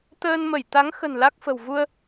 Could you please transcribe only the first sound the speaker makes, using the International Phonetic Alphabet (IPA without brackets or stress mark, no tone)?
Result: t̪